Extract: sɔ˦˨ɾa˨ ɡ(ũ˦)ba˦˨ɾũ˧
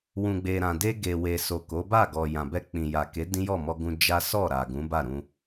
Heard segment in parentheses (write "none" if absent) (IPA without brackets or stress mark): ũ˨˦